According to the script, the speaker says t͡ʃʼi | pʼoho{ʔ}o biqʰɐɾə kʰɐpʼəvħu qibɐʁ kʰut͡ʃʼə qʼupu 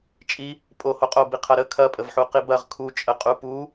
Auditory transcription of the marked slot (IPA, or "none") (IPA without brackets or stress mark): qʼ